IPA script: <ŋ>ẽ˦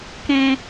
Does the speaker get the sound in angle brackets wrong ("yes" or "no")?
yes